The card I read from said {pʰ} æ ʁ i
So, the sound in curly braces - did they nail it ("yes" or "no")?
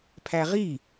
yes